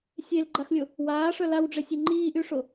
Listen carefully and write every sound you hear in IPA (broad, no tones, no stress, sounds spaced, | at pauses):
sʲ e l ɡ͡ǃ a x lʲ o | w aː ʂ œ l a w ɖ͡ʐ e sʲ ɛ ŋ͡ǃ iː ʔ y ʂ o